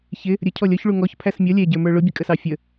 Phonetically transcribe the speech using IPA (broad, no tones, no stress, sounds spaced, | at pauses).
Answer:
ç ɪ | ɾʲ ə cʰ ɔ lʲ ɔ ç ɭ u ŋ ɔ ç pʰ æ s mʲ ʌ lʲ ɛ ɟ ə˞ m ə˞ ɭ ʊ bʲ ə kʼ ə s ɑ fʲ ə